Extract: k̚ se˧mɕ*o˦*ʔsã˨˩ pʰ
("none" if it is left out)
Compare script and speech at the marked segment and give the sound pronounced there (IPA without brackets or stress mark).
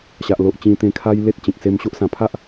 o˦